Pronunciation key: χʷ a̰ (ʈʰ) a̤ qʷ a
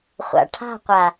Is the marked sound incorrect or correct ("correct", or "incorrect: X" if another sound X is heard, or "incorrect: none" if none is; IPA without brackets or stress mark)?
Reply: correct